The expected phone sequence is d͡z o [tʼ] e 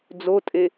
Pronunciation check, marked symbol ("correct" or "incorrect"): correct